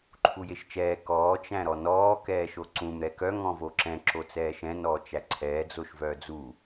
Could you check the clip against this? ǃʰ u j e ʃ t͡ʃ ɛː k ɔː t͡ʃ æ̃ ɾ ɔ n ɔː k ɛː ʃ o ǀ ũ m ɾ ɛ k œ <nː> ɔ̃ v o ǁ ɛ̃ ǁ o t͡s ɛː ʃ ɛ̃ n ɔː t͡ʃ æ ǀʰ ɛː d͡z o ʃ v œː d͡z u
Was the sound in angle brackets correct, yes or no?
no